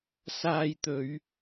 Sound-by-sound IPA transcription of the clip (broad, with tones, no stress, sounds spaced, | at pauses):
s aː˧ j t̪ ɵ˨˧ ɥ